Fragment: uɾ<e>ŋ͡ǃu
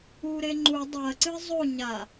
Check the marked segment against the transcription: correct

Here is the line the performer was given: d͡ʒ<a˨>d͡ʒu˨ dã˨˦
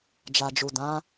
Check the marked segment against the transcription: correct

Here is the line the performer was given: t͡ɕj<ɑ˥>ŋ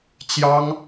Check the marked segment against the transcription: correct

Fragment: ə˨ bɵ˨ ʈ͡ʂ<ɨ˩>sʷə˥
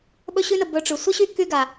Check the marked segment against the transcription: incorrect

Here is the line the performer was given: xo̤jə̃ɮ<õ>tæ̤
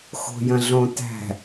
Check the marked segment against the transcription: correct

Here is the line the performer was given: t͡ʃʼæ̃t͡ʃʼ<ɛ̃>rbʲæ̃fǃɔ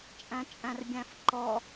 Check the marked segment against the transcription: incorrect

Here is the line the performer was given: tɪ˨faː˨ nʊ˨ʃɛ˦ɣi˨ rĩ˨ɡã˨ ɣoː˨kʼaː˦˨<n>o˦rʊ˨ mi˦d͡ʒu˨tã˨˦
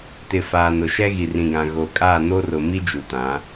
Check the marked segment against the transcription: correct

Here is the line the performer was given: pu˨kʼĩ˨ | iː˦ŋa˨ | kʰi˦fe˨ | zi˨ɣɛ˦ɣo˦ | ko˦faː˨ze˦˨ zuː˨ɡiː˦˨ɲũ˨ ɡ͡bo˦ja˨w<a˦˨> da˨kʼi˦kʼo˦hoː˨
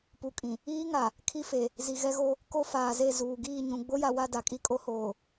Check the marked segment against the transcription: correct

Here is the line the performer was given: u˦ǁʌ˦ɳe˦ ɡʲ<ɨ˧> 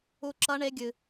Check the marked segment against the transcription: correct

